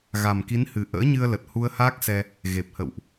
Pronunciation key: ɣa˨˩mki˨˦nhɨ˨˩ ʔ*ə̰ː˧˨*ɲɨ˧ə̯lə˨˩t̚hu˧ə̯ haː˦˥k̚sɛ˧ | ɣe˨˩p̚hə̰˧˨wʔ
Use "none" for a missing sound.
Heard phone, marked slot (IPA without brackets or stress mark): ə̰ː˧˥